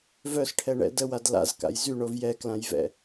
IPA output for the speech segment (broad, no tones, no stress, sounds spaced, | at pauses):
v œ s ʈʰ ɛ ɳ ɛ̰ d ə w a d l a̰ z k a̰ j z y ɳ o v j ɛ k l ã j v ɛ̰